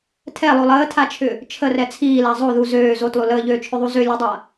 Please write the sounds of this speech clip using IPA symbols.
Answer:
tʰ ɛ lˠ o lˠ əː tʰ a t͡ʃʰ ʏ | t͡ʃʰ ə r ɛ t͡sʰ iː l a zˤ o ð u z øː z o t lˠ u l əː ʎ øː t͡ʃʰ ʏ ðˤ u z ø lʲ o dˤ a

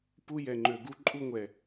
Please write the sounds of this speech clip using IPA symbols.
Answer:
p u˦ j ɛ˨ ŋ͡ǃ ø˨ ɡ u˦ ǃʼ u˦ ŋʷ ɛ˨

